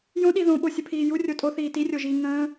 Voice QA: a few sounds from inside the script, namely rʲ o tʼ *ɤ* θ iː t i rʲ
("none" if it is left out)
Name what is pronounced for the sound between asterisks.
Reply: o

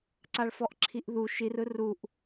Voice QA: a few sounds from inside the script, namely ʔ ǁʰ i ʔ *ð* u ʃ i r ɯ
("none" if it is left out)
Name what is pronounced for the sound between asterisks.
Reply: ð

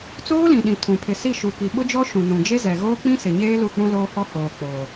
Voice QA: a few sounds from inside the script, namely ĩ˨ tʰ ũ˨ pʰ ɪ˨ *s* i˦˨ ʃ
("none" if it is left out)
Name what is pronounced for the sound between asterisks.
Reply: s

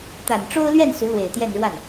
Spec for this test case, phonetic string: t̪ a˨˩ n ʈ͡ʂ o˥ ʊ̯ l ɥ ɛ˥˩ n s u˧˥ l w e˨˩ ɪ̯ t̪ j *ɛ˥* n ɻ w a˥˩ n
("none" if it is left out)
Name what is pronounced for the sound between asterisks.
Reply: ɛ˥˧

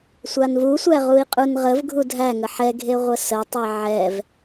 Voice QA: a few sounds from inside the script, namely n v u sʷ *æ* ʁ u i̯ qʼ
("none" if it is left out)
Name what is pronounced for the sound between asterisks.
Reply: æ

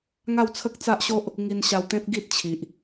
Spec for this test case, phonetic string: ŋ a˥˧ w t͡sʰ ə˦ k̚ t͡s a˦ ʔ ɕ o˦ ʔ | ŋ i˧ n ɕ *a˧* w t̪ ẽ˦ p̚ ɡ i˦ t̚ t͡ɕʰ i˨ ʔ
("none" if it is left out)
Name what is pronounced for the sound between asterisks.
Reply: a˧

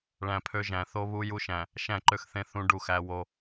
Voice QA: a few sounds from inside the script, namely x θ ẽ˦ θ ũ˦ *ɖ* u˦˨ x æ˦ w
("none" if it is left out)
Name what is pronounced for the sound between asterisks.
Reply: ɖ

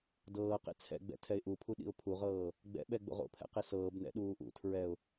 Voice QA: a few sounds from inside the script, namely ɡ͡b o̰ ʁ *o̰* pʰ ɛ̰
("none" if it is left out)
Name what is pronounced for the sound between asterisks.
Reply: o̰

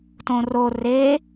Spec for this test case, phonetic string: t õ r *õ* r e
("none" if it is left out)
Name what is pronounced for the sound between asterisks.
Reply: o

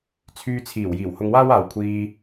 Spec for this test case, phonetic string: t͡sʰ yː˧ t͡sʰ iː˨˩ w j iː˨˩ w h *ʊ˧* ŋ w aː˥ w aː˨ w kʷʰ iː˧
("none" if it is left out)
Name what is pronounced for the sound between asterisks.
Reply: ʊ˧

